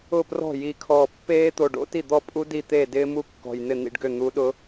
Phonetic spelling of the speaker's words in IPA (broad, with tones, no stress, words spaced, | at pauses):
ʊ˥˩prɔ̤˥˩ji˧˩ kʰɔː˧˩ pːeː˦˥t̪o˧˩ɖo̰˦˥ ti˥˩d̪ɔ˥˩pʼu˦˥ di˥˩t̪eː˥˩dɪː˦˥mu˦˥ kːɔ̤˧˩jn̪ɪ˥˩n̪ḭ˥˩ɖɡʏ˥˩ n̪u˨˥ɗʊ˦˥